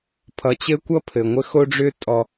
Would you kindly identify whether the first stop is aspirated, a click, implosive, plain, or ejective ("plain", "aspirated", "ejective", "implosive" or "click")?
aspirated